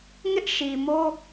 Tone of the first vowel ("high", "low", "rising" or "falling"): high